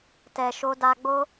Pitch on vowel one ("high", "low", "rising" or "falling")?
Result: low